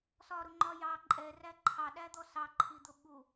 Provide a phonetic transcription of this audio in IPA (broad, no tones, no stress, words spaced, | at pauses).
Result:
sɒɾʊŋ͡ǃɒ jɑ ǃʼɛræ ǃʰɑɗæd̪ɔ sɑǃʰid̪ʊ ɓu